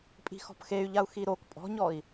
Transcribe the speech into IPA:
pʼ i̤ x ɔ̤ p x e y̯ ʎ a u̯ x i ɾ o k pʼ ɔ̤ ɲ ɔ i̯

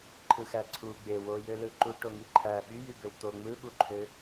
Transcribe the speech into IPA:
ǃʰ ɯ x æ ǀʰ u ɡ͡b e w o j ø l ɯ ǃ u ʈ o ŋ i ǃʰ æ ɓ y j y b ø w t̪ o ŋ͡m ɯ ɓ u ǃʰ ø

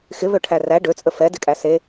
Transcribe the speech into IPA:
x ɪ β ø ʈʰ æ r æ ɖ ø t͡sʼ ə f ɛ d ɪ kʼ æ s e

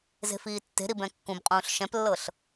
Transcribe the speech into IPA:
z e̤ f iː tː e̤ ɾ i b ɛ̃ kː ũ b qʼ ũː ɬ ʃ ɛ̃ p lː ɤ ɬ

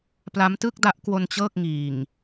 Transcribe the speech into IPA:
p l a˦˥ m t ɯ˥˩ k̚ d a˦˥ ʔ k w o˧ n t͡ɕ ɤː˥˩ k̚ ŋ iː˨˩ ŋ

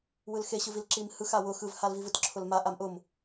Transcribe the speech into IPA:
w ɯ l x e ɕ ɯ v i l ǁ i m h ɯ x a w ʊ x ɯ v h a l v i v ɯ t ǁʰ ʊ l m a ʔ a m ʔ ʊ m

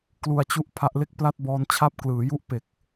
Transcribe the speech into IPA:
k l u˧ a̯ t͡ɕ u˦˥ ʔ pʰ a˦˥ ʔ l e˥˩ k̚ p l a˥˩ t̚ b ɔː˧ n t͡ɕʰ a˦˥ p̚ k l ɯː˩˦ j u˦˥ ʔ p e˨˩ k̚

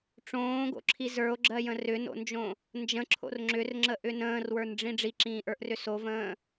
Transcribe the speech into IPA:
ʈ͡ʂ õː ɡ o̰ ǁʰ i z ə˞ o̯ ɡ͡ǁ ɜ j ə̃ r ʏ n o̰ n d͡ʒ õ | n d͡ʒ ə̃ ǁʰ o̰ r ŋ͡ǁ ʏ r ŋ͡ǁ ə ʔ ʏ n ə̃ː r w ə˞ n ɖ͡ʐ ĩ ɖ͡ʐ i ǁ ĩː ʔ ə˞ ʔ r ʏ s o v ə̃ː

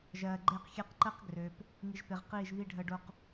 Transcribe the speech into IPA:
ʒ ɜː˨ ɡ͡ǃ eː˦ q xʲ e˦ q ǃ əː˦ q ɡ r ø˨ p | ŋ i˨ ʒ p e˨ ʁ q iː˦˨ ʒ β i˦ ɖʱ əː˦ ɖ o˦ q

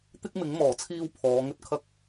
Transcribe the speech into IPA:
t̪ ɪ˥ k̚ m ɪ˨˥ ŋ m ɔː˨˩ t͡sʰ iː˧ w pʰ ɔː˨˧ ŋ ɵ˥ t̚ kʰ ɐ˥ k̚

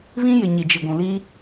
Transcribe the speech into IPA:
β ĩ˦ j ɪ˨ ɲ i˨ d͡ʒ i˨ ɡʷ ũ˨ l i˦

